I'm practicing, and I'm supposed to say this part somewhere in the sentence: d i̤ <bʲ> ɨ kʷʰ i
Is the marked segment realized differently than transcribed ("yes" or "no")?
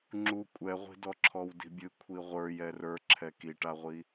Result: no